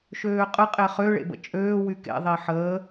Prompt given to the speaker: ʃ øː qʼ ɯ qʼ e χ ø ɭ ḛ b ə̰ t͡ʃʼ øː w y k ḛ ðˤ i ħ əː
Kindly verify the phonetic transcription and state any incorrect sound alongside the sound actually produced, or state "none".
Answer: none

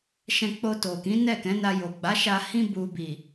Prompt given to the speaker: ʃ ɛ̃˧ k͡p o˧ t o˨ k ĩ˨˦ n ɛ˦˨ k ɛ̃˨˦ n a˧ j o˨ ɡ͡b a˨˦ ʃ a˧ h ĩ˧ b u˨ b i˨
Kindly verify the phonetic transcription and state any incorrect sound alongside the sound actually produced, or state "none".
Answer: none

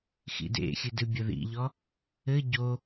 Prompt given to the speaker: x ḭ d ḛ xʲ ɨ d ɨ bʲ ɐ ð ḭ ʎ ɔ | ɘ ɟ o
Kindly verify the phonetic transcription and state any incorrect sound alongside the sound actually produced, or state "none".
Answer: none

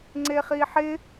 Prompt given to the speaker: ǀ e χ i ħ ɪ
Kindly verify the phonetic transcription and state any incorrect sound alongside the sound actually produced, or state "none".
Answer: ǀ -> ŋ͡ǀ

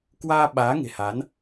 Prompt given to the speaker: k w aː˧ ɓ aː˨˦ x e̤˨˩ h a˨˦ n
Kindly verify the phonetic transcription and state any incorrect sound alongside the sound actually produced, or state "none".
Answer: x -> ŋ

